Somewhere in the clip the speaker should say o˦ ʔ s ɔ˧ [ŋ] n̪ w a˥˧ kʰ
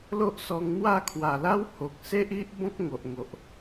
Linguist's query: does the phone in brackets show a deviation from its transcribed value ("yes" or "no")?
no